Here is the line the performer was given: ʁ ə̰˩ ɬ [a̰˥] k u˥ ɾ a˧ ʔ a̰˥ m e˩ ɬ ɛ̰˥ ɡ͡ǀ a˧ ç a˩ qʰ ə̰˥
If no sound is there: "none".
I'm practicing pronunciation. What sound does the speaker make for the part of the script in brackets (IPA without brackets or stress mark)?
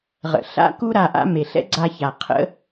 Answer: a̰˥